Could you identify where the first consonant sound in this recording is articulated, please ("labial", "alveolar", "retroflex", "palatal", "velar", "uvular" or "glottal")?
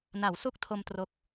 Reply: alveolar